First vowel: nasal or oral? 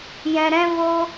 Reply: nasal